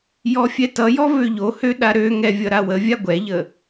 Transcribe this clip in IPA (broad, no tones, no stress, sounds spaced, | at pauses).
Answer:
j ɔ fʲ ɛ t ʌ j ɔ v ø ʎ o h ø ɗ a ɾ ø ŋ ɛ vʲ ʌ ɾ a w ə vʲ a ɡʷ ɛ ʎ ə